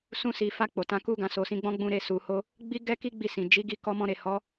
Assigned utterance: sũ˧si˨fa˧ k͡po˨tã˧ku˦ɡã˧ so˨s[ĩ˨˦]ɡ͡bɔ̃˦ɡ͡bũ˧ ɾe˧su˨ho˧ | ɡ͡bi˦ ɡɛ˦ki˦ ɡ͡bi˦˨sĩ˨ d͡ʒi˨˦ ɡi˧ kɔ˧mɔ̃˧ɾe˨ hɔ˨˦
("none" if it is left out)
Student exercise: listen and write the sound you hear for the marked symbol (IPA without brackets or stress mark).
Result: ĩ˨˦